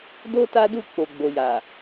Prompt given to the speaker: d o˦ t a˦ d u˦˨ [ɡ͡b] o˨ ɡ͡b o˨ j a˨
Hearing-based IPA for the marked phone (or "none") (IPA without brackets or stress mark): k͡p